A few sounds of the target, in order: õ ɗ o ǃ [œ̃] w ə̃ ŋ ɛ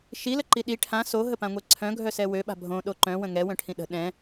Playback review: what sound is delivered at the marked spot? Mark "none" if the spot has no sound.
œ̃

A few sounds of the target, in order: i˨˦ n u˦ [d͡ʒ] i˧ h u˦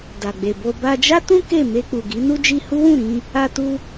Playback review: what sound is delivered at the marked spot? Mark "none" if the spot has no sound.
d͡ʒ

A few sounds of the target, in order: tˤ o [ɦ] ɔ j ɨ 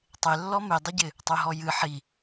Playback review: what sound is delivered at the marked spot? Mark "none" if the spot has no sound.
ɦ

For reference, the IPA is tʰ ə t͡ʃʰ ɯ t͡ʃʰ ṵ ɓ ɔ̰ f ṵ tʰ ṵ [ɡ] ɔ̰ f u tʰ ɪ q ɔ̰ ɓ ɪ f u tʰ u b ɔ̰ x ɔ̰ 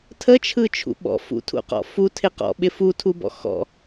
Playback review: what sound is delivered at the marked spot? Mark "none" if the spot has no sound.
q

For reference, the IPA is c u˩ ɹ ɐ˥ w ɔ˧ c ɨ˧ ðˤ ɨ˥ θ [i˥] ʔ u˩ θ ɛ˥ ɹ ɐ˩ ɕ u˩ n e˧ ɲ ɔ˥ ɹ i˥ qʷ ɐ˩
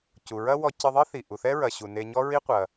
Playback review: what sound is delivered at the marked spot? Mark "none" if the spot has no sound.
i˩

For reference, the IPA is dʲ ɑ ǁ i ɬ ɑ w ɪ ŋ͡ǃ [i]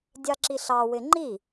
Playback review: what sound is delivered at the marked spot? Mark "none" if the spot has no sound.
i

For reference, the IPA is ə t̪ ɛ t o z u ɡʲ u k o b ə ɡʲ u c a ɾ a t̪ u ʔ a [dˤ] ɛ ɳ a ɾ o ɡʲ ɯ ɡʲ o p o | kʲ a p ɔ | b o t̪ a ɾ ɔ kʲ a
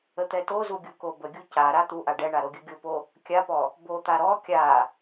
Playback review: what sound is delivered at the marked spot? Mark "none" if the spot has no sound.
ɖ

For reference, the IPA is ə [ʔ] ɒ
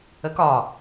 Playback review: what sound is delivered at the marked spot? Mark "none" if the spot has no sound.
k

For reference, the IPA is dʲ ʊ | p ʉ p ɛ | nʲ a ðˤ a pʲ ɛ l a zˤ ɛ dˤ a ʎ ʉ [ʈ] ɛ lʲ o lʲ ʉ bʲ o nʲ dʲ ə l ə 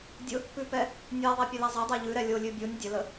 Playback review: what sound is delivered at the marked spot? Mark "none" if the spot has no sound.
ɾ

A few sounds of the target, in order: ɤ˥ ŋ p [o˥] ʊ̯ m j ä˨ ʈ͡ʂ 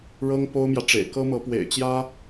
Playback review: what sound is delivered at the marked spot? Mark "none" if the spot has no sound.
o˥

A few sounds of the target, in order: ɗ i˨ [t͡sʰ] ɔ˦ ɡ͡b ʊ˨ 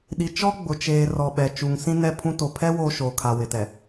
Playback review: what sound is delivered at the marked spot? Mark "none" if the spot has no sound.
t͡ʃ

